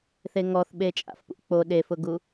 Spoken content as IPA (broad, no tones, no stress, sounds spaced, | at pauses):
θ e ŋ ɔ θ ɓ e t͡ʃʼ a̰ f p ṵ k͡p o ɗ e f ʊ ɡ u